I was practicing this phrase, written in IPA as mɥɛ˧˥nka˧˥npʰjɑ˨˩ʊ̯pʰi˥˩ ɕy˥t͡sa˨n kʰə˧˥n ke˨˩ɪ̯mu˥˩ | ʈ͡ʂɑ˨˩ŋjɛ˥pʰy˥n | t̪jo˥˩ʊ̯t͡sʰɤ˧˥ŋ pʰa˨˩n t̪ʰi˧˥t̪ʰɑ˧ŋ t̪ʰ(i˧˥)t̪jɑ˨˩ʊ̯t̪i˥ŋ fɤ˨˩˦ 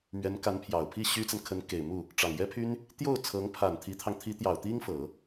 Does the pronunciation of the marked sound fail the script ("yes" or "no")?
no